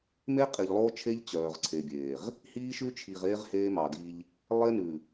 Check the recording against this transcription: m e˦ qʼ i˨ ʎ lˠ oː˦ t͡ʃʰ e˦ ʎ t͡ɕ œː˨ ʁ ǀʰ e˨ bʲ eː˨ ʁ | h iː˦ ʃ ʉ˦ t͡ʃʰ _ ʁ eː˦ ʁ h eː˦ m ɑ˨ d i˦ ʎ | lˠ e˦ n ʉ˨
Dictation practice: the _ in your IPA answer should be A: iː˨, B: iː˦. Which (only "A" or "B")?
A